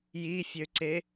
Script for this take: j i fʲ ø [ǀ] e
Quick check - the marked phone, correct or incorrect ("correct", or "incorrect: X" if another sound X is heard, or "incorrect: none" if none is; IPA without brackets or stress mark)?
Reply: correct